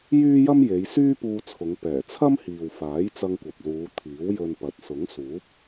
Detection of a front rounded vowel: present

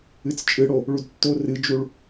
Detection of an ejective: present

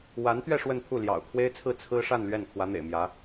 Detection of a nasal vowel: absent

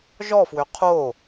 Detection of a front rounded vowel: present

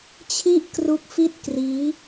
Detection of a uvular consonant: absent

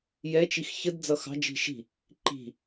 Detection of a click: present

